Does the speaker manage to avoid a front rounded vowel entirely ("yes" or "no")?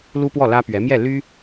no